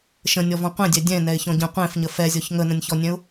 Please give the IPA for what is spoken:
ʃ ə̃ nʲ ɔ v ɔ̃ qʷ ɛ̃ dʲ ɛ dʲ ɛ̃ n ɛ ɪ̯ ç ɔ̃ ɟ ə̃ qʷ ɛ̃ f ɲ ə f ɛ zʲ ɔ ç ŋ ə n ə̃ nʲ ç ɔ nʲ ɛ̃ ʊ̯

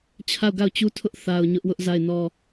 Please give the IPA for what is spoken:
t͡ɕʰ a˦˨ ʊ̯ ɡ a˦˨ ʊ̯ t͡ɕ u˦ tʰ ʊ˦ ʔ θ a˨ ʊ̯ ɲ ʊ˦ ʔ w ʊ˦ ʔ z a˦˨ ɪ̯ n ɔ˦

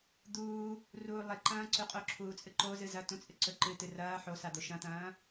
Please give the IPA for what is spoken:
d̪ uː | r uː lˠ e ǃ ɐ̃ː ǀ ʉ qʼ o ǁʰ uː t͡sʼ ɨ ǃ o z ɨ z ɐ t ũ t͡sʼ ɨ ǀ ɵ ǃ ɨ t ɨ r ɐː ħ o s a d̪ o ʃ ɐ̃ t̪ ɐ̃ː

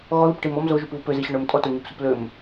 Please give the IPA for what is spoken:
ɣ ɔ ð u p ʈ i m ɔ m z o ʒ u p β u p ø z i ɕ ɔ ɳ ø m tʼ ɔ t ɔ ɲ ø p s u p l ø m

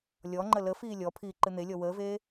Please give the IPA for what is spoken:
lʲ ɔ ŋ͡ǃ ə l ə f iː lʲ ɔ pʰ iː ǃ ɨ n̪ e lʲ ɔ w əː v eː

